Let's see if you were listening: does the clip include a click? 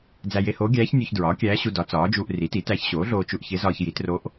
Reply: no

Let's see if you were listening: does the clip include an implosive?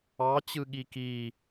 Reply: yes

